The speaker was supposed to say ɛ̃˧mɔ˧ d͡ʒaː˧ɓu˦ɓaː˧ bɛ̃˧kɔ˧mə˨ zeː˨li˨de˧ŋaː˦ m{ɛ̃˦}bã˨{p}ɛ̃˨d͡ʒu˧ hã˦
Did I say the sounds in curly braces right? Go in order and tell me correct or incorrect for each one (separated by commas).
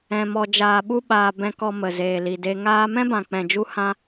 correct, incorrect